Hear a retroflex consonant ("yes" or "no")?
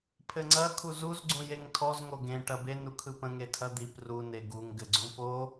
yes